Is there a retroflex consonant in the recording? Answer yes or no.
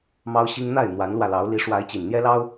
yes